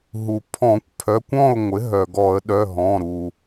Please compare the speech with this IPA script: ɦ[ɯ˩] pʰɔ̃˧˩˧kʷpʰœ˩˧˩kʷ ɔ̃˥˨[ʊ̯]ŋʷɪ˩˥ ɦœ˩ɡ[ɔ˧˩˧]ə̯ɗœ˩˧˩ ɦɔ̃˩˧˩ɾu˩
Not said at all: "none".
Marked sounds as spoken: u˩, ʊ̯, ɔ˧˩˧

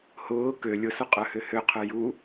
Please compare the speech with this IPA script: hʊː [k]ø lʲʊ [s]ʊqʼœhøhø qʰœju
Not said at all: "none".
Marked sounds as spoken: k, s

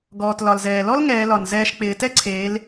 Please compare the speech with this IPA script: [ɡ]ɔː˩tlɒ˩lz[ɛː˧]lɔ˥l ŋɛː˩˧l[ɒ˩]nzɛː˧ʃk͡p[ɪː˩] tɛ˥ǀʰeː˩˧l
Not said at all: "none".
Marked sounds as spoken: ɡ, ɛː˩, ɒ˩, ɪː˩˧

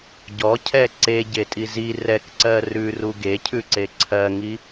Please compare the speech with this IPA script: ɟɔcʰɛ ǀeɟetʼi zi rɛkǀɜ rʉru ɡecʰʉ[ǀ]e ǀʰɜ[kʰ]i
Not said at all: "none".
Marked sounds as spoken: ǀ, ŋ

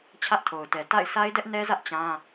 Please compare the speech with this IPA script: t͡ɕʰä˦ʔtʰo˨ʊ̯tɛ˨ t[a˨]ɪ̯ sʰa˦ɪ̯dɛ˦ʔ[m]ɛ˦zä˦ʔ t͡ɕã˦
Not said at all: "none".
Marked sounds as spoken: a̰˦˨, n

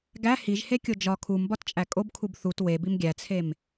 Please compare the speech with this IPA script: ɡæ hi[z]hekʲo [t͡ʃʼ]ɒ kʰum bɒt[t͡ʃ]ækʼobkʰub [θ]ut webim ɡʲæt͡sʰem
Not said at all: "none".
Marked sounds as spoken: ʒ, d͡ʒ, t͡ʃʼ, θ

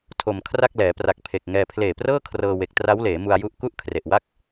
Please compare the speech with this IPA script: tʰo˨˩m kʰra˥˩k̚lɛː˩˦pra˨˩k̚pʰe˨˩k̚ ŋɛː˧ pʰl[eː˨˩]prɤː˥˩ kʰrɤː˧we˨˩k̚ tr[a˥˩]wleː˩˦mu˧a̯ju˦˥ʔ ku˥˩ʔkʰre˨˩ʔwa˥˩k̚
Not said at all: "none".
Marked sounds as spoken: eː˨˩, a˦˥

